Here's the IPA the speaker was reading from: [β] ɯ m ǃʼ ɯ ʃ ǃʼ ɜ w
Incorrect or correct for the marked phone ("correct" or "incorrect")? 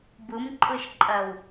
incorrect